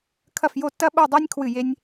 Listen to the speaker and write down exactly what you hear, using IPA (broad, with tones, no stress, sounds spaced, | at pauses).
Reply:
kʰ ɐ˥˧ f j o˥˧ tː ɐ˥ ɓ o˥˧ dˤ e˥ nʲ kʰ w ɨ˥˧ j e˥ nʲ